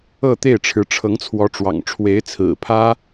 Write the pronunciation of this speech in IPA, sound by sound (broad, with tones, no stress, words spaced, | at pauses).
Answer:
ɤ˥˧t̪e˥˩ɪ̯ ʈ͡ʂʰɻ̩˧˥ʈ͡ʂʰɤ˧˥ŋt͡sʰwɔ˧˥ʈ͡ʂwɑ̰˨˩ŋ ʈ͡ʂʰwe˧˥ɪ̯t͡sʰɹ̩˨˩pʰä˥